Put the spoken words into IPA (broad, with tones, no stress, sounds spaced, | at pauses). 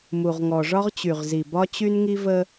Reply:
m u˨ ʁ ŋ ɔ˨ ʐ ɒ˦ ʁ t͡ɕ y˨ ʁ z i˨ b ɒ˦ t͡ɕ y˦ n ŋ i˦ v ə˦